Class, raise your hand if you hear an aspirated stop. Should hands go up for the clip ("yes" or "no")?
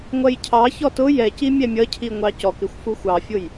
yes